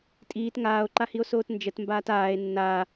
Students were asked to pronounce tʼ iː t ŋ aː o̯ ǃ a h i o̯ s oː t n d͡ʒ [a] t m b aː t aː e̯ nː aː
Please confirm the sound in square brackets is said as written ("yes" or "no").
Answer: no